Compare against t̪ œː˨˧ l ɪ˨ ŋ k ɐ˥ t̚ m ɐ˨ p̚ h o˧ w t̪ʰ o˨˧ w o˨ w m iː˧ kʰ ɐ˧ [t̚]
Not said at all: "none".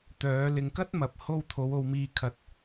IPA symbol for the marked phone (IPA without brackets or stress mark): t̚